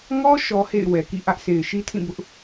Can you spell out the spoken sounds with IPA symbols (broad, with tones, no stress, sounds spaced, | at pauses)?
ŋ ɔ˦ ʃ ɔ˦ h ḛ˦˨ ɪ̯ w ɛ˨ k ḭ˦˨ ʔ ä˦ ʔ sʰ e˨ ɪ̯ ʃ i˦ tʰ ĩ˦˨ b ʊ˦ ʔ